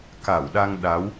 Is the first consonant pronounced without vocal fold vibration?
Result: yes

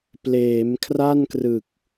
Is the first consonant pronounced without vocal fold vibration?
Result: yes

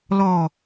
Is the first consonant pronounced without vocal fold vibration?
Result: no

